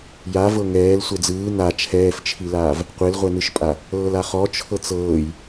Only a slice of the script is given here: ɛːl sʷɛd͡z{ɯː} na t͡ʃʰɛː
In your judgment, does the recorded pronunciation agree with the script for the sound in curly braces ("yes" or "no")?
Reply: yes